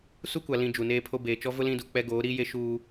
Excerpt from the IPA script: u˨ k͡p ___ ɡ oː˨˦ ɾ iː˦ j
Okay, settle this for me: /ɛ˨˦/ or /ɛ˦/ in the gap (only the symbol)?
ɛ˦